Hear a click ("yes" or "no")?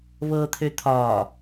no